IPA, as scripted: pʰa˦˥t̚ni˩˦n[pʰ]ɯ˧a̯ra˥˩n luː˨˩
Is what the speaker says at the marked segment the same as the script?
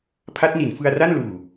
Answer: no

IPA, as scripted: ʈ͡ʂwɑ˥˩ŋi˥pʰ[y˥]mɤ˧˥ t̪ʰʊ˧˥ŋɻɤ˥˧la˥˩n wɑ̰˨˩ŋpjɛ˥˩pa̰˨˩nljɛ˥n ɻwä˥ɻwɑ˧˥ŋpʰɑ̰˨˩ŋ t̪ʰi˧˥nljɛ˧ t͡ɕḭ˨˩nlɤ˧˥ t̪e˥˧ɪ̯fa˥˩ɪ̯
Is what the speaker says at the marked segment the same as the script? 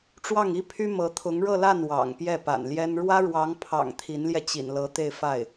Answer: yes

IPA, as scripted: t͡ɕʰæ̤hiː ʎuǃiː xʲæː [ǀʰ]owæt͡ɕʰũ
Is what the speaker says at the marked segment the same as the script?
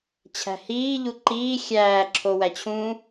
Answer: no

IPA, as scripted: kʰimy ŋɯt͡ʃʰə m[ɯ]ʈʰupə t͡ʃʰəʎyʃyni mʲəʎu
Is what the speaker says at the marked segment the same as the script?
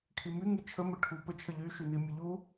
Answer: no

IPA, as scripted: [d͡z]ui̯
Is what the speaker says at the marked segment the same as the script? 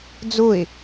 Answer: yes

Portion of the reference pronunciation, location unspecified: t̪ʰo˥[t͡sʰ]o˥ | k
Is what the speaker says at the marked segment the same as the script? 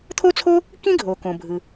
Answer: yes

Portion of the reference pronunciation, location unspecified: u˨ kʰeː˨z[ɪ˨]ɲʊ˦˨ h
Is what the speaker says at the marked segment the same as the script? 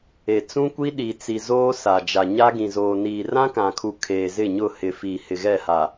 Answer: no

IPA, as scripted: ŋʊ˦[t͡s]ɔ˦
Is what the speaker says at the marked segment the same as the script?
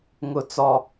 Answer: yes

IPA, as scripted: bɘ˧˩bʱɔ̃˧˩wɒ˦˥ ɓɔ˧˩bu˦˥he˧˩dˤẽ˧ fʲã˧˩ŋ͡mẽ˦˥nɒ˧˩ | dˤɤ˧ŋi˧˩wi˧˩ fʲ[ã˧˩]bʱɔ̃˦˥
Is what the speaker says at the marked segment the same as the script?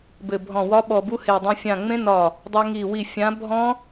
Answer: no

